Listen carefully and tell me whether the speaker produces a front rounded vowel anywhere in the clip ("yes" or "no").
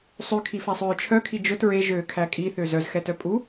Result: yes